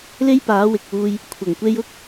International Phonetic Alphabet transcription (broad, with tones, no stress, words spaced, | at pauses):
le˥jpaː˨˥wɪ˨k̚wuː˧j | kʷʰɐ˨˩ŋkʷe˧j ʊ˥k̚